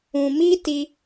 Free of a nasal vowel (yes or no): no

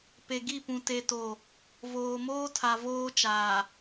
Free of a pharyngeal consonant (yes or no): yes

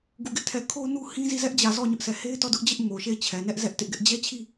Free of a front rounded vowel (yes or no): yes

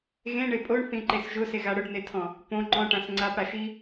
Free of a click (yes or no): no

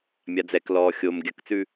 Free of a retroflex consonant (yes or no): yes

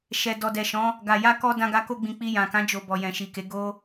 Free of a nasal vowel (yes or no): no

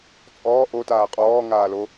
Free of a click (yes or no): yes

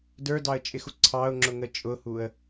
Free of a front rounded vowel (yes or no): yes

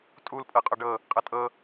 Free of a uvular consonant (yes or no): no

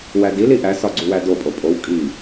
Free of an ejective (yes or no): no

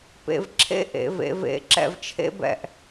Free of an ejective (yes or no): yes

